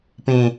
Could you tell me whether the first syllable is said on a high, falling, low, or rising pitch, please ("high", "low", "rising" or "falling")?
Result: low